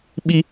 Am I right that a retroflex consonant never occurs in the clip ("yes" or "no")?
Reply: yes